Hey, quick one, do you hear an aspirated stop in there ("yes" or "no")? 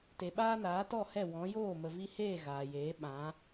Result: no